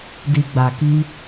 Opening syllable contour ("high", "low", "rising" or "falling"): low